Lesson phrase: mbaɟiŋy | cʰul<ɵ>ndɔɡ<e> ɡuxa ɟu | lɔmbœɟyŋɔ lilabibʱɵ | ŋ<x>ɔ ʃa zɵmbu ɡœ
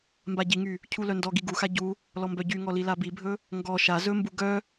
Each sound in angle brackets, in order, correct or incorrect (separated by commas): incorrect, incorrect, incorrect